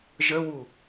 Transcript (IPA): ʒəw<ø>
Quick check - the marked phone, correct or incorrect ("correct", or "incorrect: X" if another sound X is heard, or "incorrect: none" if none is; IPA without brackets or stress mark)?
incorrect: u